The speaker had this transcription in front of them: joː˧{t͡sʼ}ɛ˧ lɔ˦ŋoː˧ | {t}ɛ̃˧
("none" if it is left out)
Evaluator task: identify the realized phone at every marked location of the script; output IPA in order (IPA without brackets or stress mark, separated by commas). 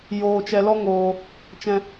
t͡ʃ, t͡ʃ